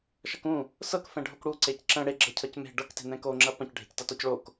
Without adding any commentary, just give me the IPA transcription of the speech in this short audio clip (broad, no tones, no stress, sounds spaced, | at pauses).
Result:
ʃ ʌ k ũ | s ɤ k f ɛ̃ ɖʱ o k ɽ u ǀ e c ǁ ə̃ ɽ e ɡ͡ǁ ɤ cʰ ʌ c m e̤ ɖ ɤ k t e̤ n ɛ̃ k o ŋ͡ǁ ɐ p ɐ̃ c ɖʱ e̤ c t ʌ t ɔ c ɭ o k